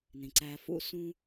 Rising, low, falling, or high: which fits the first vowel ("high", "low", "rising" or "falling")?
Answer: low